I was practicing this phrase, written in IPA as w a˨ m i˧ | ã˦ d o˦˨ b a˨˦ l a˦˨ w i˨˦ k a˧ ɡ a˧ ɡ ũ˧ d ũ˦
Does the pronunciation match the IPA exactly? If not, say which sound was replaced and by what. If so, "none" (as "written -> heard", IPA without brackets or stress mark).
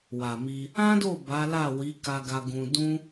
none